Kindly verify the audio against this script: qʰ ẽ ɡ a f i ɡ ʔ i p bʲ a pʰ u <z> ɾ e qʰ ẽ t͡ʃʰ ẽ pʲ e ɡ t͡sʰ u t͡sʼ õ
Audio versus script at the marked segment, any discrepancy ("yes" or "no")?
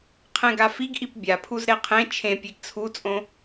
no